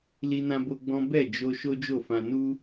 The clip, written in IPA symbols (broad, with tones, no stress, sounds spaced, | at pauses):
l i˦ n ã˦ b o˦ ɡ͡b ɔ̃˦ b ɛ˦˨ d͡ʒ o˧ ʃ o˦ d͡ʒ o˦˨ f ã˧ n u˦